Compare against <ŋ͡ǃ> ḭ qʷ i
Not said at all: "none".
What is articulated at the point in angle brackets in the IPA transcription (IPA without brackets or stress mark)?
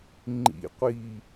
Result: ŋ͡ǃ